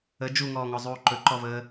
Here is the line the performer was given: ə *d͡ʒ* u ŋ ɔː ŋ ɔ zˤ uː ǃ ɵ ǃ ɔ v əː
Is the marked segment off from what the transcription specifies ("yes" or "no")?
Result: no